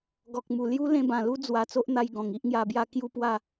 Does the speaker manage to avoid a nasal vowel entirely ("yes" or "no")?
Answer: no